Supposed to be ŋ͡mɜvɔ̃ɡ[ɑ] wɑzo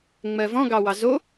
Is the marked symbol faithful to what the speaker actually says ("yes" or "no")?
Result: yes